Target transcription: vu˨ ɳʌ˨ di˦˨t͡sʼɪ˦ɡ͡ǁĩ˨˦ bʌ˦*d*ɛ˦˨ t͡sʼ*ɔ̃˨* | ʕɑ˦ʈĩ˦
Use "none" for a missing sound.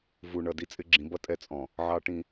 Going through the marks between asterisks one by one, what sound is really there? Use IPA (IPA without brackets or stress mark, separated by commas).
tʼ, ɔ̃˨